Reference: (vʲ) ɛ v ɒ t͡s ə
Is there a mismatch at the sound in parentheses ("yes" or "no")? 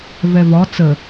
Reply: yes